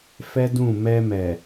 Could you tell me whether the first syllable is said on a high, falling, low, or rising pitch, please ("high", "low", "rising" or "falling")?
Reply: high